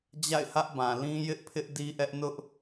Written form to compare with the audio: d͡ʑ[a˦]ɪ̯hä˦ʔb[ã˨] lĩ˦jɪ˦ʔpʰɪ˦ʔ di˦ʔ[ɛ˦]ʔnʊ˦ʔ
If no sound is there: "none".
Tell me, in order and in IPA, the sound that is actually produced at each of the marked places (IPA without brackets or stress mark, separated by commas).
a̰˦˨, ã˨, ɛ˦